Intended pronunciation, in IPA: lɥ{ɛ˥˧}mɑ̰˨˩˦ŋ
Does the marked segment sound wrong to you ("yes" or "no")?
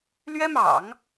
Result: yes